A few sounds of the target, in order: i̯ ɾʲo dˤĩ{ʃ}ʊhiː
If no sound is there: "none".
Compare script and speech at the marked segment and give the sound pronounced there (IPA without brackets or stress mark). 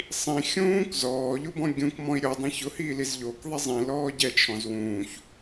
ç